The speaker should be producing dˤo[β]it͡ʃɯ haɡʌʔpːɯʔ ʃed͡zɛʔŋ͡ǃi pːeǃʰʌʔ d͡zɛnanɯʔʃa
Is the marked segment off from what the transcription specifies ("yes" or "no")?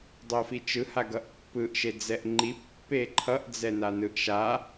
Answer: yes